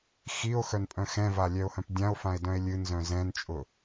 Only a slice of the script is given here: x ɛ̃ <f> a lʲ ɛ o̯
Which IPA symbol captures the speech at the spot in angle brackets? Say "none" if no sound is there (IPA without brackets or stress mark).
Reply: v